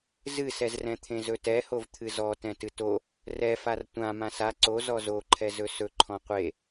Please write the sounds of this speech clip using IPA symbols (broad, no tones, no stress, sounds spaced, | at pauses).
z ɨ s ɛ z r ɛ̃ t̪ʰ ẽ z ɵ t ɛ h o v t̪ʰ ɨ z ɔ t ɛ̃ t ɨ t o | r ɛ f a r tʷ ã m ã s a ǀ o z ɔ z o ǃʰ ɛ z ɵ s ɵ ǃʰ ɔ̃ qʷ e